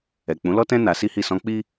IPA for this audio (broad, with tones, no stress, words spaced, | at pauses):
ɛ˨k͡pũ˨˦lɔ˦tɛ̃˦ na˧si˦hi˦˨ sɔ̃˧k͡pi˦